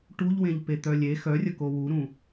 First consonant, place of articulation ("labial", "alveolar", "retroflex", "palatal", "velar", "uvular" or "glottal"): retroflex